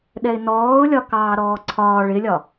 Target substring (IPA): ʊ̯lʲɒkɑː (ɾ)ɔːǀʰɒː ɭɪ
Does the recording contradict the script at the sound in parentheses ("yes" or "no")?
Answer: no